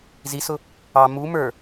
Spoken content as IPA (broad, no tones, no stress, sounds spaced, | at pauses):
z i s ʊ | ɑ m u m ə˞